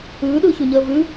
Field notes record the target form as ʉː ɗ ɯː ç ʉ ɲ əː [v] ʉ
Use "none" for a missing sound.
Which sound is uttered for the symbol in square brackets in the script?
v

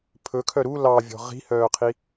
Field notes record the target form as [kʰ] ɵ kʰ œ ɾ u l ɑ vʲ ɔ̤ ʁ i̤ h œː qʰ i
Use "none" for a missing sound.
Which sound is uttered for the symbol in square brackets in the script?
pʰ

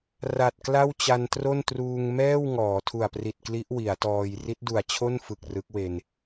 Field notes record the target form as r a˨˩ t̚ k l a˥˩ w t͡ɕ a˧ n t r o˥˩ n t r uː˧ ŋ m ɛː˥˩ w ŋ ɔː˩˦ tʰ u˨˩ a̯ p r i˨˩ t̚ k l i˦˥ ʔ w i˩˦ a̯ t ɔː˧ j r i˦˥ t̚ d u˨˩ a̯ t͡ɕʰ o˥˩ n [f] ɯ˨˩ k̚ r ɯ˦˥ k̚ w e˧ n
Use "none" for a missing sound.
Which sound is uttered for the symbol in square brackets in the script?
f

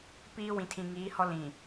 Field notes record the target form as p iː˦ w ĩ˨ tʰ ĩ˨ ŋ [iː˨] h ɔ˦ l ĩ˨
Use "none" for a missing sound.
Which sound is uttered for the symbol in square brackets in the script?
iː˨˦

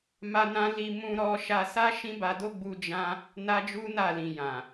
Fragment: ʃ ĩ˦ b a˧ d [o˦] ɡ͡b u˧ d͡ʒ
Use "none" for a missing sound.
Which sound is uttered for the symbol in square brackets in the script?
o˦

